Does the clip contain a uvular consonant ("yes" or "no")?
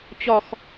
no